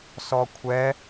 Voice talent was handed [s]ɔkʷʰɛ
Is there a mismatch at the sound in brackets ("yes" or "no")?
no